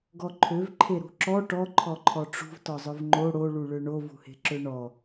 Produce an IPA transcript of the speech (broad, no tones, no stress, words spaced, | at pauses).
ɡɔǃʰøvǃʰe ɾṳǁɔ ʈɔ ǃʰɔǃʰɔʈ͡ʂṳv tɔzˤœvŋ͡ǃo ɽoɭu ɭøɳovṳhe̤ ǁøɳɔ